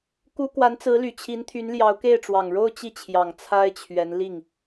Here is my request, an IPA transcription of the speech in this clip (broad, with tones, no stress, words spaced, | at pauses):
ku˥ kwa˧˥nt͡sɹ̩˧˥ly˨˩t͡ɕʰi˧˥n t̪ʰy˧˥nljɑ˧˥ʊ̯ke˥˩ɪ̯ ʈ͡ʂwɑ˨˩ŋɻo˥˧ʊ̯ t͡ɕi˥˩t͡ɕʰjɑ˨˩ŋ t͡sʰa˥ɪ̯t͡ɕʰɥɛ˧˥n li˥˩ŋ